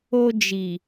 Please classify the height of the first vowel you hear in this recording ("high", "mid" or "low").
mid